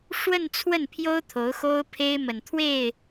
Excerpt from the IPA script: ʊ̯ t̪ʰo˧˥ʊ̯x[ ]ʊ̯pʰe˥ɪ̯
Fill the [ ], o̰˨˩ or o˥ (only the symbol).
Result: o˥